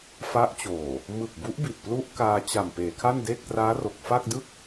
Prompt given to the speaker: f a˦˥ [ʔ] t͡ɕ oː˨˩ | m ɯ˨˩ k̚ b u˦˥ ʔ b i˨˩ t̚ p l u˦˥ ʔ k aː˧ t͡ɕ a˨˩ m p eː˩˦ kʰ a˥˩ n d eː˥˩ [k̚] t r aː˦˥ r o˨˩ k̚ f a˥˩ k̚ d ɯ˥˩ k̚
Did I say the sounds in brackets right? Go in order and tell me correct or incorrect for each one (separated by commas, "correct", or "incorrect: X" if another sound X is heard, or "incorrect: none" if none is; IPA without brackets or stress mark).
correct, correct